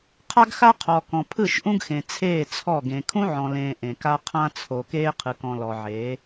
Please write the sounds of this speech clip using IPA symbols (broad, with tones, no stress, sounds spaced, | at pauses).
qʰ a˦ ɡ x a˦ qʰ ɔ˨ k ɔ̃˨ pʰ ɯ˦˨ ʃ ʔ ũ˦ ɡ x ẽ˨ t͡sʰ eː˦˨ t͡sʰ ɔ˦˨ ɡ ẽ˨ kʰ ũ˦ ʕ ɔ̃˨ l ẽː˨ ʔ ẽ˨ k a˦ qʰ ã˦ t͡sʰ o˨ k eː˦ qʰ ɯ˨ k ɔ̃˨ l ɔ˨ ʕ eː˨˦